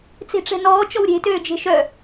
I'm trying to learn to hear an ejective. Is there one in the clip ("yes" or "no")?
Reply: no